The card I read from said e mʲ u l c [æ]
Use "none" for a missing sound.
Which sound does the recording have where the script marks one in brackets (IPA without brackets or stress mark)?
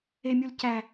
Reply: æ